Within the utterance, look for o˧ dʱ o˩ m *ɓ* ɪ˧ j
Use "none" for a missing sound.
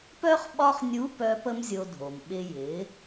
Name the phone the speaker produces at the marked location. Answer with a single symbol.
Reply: ɓ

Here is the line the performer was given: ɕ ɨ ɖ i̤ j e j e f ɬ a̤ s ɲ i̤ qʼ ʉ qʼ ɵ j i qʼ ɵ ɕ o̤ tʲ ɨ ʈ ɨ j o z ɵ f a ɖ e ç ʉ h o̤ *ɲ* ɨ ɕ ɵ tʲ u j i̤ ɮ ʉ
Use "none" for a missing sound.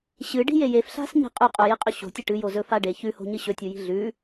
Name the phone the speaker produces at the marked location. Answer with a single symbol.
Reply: ɲ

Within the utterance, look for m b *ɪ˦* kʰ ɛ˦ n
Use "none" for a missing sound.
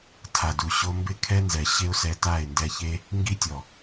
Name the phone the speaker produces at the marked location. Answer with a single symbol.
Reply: ɪ˦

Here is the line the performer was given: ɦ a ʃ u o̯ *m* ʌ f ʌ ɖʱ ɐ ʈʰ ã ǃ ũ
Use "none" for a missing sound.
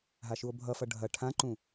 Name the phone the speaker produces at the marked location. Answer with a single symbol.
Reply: bʱ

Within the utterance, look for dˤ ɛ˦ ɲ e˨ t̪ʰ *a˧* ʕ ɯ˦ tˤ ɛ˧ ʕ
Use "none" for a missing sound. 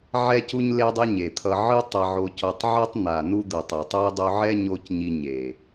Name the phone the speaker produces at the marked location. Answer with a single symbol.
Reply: ʌ˧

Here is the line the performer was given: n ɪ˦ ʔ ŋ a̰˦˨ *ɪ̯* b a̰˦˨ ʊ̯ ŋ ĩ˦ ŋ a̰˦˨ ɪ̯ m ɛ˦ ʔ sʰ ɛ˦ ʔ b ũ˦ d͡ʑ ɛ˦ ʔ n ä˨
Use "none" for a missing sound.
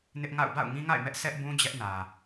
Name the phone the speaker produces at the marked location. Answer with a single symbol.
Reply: ʊ̯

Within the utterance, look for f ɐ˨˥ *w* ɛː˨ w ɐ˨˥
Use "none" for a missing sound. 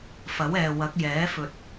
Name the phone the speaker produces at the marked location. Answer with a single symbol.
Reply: w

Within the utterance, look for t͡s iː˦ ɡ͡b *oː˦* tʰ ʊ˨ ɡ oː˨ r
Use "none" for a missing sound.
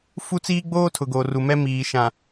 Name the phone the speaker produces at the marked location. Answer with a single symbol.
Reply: oː˦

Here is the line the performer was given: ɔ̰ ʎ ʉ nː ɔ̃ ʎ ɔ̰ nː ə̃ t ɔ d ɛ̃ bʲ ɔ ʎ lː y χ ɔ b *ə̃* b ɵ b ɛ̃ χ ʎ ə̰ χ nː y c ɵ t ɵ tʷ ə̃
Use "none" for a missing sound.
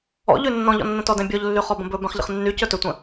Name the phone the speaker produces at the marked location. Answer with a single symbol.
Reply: ə̃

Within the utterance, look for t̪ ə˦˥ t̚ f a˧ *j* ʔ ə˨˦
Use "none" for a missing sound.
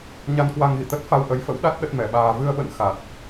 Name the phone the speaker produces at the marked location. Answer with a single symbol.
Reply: w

